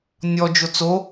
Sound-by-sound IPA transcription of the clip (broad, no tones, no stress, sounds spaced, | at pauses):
nʲ ɔ d͡ʒ o t͡s o